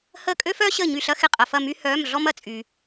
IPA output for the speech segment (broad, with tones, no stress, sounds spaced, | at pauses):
h əː˦˨ kʼ ø˥ f œː˥ ɕ əː˦˨ ɲ y˦˨ ɬ ɐ˥ x ɪ˦˨ qʼ ɐ˨ f ɐ˦˨ m y˥ h œː˧˥˧ m ɮ ɔ˥ m ɐ˨ t͡sʼ yː˨